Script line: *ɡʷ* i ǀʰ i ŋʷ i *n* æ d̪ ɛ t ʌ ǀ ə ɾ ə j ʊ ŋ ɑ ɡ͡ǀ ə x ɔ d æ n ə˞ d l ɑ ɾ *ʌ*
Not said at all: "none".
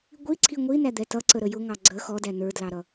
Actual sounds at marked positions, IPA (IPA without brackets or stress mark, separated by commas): ɡʷ, n, ʌ